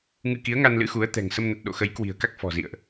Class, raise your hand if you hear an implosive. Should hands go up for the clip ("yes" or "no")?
yes